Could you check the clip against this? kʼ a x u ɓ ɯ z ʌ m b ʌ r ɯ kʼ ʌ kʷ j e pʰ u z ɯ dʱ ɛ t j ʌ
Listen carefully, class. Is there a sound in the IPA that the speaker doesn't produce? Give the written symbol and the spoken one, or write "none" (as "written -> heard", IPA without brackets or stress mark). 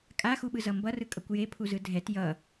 none